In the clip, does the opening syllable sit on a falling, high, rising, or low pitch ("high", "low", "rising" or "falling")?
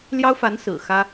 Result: high